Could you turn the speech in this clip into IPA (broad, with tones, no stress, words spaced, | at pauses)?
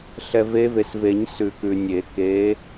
ɬɛ˨ve˨˦ve˨sve˨˩˦ɲ sʉ˨˩˦kʉ˨nʲe˨˩˦ ke˨˦